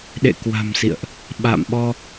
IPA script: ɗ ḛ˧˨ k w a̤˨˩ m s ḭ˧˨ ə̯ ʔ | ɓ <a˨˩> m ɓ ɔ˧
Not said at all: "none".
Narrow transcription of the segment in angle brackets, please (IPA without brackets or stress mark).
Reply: a̰˧˨